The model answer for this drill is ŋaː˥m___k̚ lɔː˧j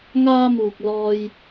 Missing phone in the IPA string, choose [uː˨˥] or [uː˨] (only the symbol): uː˨